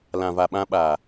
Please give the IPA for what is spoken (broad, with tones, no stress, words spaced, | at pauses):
lã˨va˨ɓã˧ ɓaː˨